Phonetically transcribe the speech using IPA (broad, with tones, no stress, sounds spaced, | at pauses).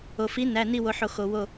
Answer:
o˩ f i˩˥ n æ˩˧˩ n i˧˩ w o˩ ħ o˩ x o˩ w o˧˩